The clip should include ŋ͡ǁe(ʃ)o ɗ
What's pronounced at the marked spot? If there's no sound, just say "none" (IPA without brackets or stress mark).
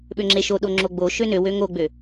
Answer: ʃ